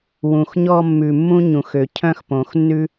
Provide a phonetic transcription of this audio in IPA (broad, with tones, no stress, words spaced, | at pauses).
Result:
wũ˨˩xɲɔ˥˧mːʉ˨˩ mːũ˥ɲũ˩˧xø˨˩ cʰœ̃˥˧xpõ˨˩xnːʉ˥